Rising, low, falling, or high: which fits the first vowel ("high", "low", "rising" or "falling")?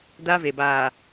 high